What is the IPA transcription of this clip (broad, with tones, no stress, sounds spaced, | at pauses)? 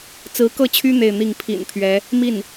t͡s ɹ̩˧˥ k ɤ˥˩ t͡ɕʰ y˥ n̪ e˥˧ ɪ̯ n̪ i˥˩ ŋ pʰ ḭ˨˩ n pʰ ɥ ɛ˧˥ | m i˥˩ n